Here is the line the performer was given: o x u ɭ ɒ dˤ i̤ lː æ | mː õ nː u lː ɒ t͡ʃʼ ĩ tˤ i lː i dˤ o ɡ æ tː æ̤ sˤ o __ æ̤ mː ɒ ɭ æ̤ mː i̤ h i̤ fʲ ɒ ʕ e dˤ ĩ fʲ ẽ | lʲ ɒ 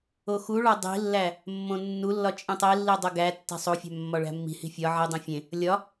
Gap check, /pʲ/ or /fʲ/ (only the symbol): fʲ